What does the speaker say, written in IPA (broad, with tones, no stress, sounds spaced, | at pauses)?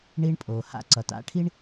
ɳ i˧ ɳ pʼ o˩ h a̰˧ ǀ ʌ˩ t a̰˧ ʈʰ i˥ ɳ